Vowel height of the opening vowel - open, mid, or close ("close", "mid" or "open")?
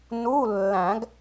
close